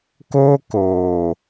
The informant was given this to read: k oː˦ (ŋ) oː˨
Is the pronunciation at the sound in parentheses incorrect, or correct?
incorrect